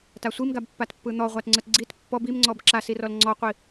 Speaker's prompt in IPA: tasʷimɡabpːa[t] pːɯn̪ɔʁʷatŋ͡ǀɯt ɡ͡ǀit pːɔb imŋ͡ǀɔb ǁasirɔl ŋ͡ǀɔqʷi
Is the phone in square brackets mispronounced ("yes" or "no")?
no